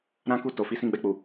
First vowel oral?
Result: no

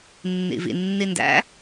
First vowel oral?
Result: yes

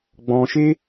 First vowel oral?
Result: no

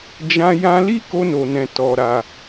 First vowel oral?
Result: no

